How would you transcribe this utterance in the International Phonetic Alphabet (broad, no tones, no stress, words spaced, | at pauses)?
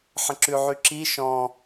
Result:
ħə̃ǁʉʕyǁi ʃɔ̃